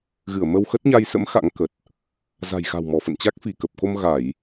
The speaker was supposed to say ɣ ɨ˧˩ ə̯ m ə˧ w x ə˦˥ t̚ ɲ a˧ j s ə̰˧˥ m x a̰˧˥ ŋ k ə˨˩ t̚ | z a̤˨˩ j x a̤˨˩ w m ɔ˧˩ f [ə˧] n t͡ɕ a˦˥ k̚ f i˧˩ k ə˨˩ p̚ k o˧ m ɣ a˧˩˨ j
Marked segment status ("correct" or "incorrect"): incorrect